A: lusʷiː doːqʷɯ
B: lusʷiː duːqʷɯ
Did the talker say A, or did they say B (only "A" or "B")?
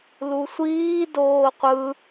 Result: A